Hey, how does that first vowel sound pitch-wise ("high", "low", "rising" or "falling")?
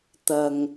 low